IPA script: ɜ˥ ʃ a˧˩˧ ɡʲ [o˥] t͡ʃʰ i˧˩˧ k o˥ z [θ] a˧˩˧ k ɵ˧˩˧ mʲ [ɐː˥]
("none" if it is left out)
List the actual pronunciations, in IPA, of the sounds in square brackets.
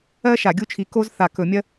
u˥, θ, ɐ˥

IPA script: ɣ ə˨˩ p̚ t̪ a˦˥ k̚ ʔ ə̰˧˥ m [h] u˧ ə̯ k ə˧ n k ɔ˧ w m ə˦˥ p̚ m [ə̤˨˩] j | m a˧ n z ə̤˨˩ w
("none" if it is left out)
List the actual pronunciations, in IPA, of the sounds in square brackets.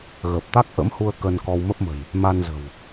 h, ə̤˨˩

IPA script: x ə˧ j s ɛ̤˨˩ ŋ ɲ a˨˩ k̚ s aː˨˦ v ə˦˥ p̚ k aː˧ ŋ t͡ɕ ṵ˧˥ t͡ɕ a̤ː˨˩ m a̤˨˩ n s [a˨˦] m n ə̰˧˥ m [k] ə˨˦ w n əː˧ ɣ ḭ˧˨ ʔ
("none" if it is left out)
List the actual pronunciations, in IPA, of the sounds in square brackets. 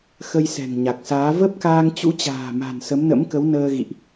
ə˨˦, k

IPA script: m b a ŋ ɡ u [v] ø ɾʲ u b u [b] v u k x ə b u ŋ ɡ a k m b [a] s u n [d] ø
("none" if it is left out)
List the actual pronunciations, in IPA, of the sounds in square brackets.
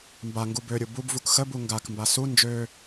b, b, a, d͡ʒ

